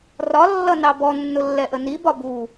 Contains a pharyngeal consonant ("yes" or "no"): no